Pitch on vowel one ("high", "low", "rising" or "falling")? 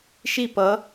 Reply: falling